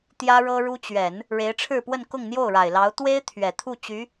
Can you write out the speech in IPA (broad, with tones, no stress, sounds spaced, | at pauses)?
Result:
t̪ j ä˥ ɻ ɤ˥ ɻ u˥ t͡ɕ ɥ ɛ˨˩˦ n | ɻ e˧˥ ɪ̯ ʈ͡ʂʰ ɻ̩˥˧ p w ə˥˧ n k ʊ˥˧ ŋ n̪ j o˥˩ ʊ̯ ɻ a˨˩ ɪ̯ l ɑ˧˥ ʊ̯ t̪ w e˥ ɪ̯ t̪ʰ ɥ ɛ˨˩ t̪ʰ u˥˩ t͡ɕ y˧˥